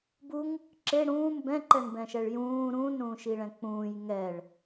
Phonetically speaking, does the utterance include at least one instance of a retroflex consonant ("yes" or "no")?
yes